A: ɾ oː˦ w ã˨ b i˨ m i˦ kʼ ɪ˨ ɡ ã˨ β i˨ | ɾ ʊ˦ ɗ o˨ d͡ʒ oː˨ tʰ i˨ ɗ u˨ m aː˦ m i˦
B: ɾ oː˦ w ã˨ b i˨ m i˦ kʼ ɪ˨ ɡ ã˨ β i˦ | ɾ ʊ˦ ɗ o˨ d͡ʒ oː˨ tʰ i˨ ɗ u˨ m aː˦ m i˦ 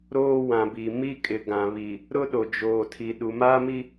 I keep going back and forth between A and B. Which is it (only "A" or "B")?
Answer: A